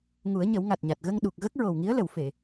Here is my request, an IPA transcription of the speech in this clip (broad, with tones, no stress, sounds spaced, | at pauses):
ŋ u˨˩˦ ə̯ ɲ ə˨˩˦ w ŋ a˨˩ t̚ ɲ a˨˩ t̚ ɣ ə˧ ŋ ɗ u˨˩ k̚ ɣ ə˦˥ k̚ ɹ o˨˩ w ŋ i˧˥ ə̯ l ə˨˩˨ w f e˨˩˨